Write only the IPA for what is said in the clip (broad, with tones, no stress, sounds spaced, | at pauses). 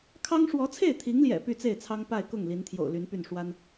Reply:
kʰ ɑ˥ ŋ ʂ w ɔ˧˥ t͡sʰ e˥˩ ɪ̯ t̪ʰ i˧˥ ŋ l j ɛ̰˨˩ p y˥˧ t͡s e˥˩ ɪ̯ t͡sʰ ɑ˥ ŋ p a˥˧ ɪ̯ k ʊ˥˩ ŋ l i˧˥ n t̪ʰ j o̰˨˩ ʊ̯ l y˧˥ n p y˥˩ n ʂ w a˥ n